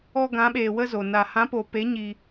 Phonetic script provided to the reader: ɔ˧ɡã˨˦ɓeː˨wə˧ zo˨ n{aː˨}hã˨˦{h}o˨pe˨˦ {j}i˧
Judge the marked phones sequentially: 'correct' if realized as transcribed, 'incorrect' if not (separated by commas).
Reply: incorrect, incorrect, incorrect